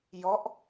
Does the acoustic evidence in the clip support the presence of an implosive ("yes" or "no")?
no